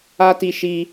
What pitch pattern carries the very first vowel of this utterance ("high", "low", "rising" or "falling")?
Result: high